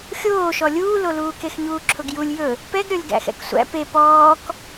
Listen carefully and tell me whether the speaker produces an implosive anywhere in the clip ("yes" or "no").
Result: no